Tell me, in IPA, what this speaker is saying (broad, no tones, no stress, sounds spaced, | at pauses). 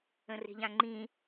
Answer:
ə̃ r e̤ ʎ ã ŋ͡ǃ ĩ